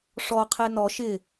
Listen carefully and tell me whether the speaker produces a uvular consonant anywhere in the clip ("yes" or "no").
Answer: yes